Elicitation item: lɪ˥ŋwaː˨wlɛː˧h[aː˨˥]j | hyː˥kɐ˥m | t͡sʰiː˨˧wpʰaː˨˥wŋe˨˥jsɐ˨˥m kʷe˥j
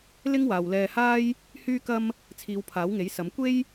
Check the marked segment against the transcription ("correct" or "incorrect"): incorrect